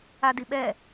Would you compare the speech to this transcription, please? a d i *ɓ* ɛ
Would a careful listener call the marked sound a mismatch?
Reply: no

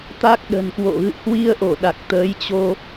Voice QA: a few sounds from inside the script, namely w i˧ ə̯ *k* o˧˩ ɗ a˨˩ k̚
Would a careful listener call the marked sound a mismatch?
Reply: yes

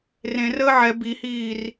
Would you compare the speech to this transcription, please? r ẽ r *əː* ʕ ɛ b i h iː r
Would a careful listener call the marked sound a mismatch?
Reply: no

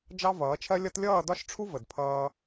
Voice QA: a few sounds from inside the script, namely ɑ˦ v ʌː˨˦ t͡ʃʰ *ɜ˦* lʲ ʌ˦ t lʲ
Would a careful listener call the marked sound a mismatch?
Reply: no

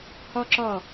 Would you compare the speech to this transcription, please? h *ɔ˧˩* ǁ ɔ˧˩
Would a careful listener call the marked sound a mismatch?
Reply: yes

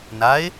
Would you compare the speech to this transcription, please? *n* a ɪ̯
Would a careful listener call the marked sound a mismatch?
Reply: no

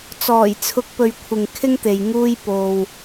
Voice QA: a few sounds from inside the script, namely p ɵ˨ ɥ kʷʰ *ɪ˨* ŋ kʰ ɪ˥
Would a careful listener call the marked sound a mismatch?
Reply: no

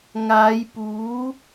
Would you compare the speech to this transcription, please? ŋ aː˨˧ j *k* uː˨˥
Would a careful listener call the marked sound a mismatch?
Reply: yes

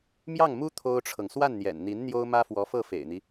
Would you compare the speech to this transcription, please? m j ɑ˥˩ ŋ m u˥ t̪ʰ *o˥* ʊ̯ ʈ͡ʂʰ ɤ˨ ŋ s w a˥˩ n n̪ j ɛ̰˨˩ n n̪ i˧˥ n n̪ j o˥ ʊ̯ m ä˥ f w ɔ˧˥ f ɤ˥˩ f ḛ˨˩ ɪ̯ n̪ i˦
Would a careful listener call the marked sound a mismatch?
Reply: no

